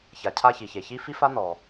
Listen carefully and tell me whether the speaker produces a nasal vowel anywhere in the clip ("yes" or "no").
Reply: no